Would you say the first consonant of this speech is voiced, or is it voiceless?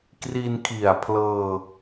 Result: voiceless